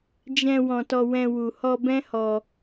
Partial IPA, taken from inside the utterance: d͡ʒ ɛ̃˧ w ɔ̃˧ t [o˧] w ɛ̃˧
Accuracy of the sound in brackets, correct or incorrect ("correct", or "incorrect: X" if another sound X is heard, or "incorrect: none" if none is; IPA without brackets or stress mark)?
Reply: incorrect: ɔ˧